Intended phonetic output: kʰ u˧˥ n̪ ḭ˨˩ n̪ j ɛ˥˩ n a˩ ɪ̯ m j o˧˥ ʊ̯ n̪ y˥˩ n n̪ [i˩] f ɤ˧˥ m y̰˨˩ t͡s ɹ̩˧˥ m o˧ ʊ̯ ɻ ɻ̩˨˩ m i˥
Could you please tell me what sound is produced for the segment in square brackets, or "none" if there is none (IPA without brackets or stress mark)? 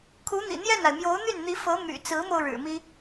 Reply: i˧˥